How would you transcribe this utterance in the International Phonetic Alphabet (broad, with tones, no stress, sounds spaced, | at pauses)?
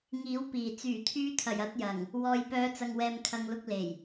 ŋ iː˨˥ w p iː˨˩ t͡s yː˨˩ t̪ʰ yː˨˧ t̪ʰ ɐ˨˩ j ɐ˧ t̚ j ɐ˨˩ ŋ | w ɔː˨ j p œː˨˧ t͡s ɐ˨ ŋ w ɛː˨ m kʰ ɐ˨ ŋ l ʊ˧ k̚ l e˨˩ j